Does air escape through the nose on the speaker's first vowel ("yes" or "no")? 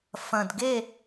yes